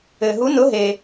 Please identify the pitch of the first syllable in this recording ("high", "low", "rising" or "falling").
low